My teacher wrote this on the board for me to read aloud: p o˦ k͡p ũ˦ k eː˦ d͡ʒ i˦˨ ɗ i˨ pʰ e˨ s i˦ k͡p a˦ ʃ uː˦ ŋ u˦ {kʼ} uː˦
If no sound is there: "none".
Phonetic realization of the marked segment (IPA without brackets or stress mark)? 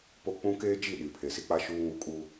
kʼ